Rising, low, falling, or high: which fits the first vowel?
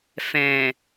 low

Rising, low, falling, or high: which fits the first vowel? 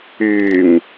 low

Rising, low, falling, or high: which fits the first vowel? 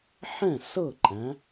falling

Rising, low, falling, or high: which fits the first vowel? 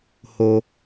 low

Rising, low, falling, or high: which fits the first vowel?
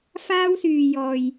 high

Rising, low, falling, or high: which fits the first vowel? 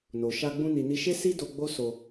low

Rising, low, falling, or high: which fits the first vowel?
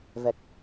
low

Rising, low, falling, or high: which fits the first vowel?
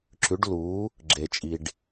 rising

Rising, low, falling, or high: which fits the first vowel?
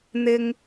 high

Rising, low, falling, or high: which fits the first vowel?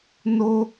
high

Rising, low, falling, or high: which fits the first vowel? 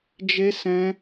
high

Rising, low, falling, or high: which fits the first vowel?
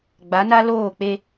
rising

